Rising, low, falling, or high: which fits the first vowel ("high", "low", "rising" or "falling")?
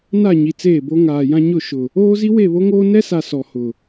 falling